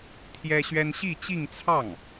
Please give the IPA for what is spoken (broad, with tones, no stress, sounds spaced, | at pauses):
t̪ʰ j ɛ˥ ɕ ɥ ɛ˥ n ɕ i˥˧ t͡ɕ i˥˧ ŋ t͡sʰ ɑ˥˩ ŋ